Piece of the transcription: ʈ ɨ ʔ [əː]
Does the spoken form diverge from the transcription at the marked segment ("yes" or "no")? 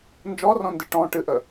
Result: yes